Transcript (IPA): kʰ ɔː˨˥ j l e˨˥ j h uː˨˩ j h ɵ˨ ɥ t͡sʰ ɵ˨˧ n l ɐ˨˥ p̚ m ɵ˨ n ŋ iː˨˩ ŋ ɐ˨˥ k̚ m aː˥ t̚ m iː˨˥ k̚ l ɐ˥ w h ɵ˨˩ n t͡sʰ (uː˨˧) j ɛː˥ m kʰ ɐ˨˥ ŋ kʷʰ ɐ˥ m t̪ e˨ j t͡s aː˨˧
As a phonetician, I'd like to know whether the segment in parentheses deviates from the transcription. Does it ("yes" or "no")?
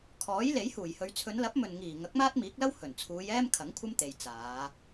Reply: no